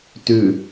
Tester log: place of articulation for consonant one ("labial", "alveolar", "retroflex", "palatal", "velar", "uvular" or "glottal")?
alveolar